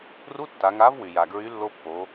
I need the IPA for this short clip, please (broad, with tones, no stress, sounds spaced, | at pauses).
r u˧˥˧ tː a˩˧ ŋ a˨˥ v w y˩ j a˩ ɡ ɹ y˨˥ lː o˧ pː o˩˧